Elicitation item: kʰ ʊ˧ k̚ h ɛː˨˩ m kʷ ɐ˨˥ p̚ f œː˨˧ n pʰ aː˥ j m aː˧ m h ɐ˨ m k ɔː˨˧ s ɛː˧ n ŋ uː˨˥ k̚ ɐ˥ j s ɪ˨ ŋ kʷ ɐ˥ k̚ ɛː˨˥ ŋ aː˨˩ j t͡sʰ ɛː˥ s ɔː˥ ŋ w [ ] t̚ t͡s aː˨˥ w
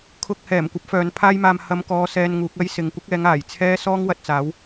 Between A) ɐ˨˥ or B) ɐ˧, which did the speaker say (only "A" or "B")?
B